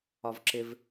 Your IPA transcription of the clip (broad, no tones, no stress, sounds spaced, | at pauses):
ɒ v ǁ ɪ v